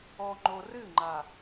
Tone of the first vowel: low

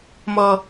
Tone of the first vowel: low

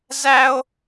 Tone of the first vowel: high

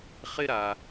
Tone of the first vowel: high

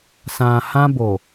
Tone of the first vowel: low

